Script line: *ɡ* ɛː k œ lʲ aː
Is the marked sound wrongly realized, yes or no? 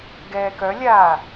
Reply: no